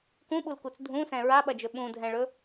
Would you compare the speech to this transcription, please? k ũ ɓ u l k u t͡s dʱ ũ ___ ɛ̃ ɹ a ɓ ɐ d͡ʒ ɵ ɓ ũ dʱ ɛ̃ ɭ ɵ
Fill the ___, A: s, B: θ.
A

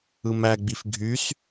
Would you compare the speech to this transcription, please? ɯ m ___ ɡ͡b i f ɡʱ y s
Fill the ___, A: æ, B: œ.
A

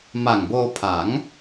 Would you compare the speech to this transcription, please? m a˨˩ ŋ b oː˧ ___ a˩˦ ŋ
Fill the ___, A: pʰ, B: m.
A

